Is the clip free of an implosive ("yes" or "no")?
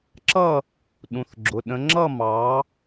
no